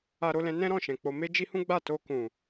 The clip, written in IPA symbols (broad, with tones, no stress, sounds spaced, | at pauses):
a˧ ɾ o˧ l ɛ̃˧ n ɛ̃˦ ɾ ɔ̃˦˨ ʃ ɛ̃˨ k͡p o˨ m e˧ d͡ʒ i˧ h ũ˦ ɡ͡b a˦˨ t o˧ k ũ˨